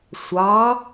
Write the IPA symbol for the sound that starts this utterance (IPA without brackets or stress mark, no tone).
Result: sʷ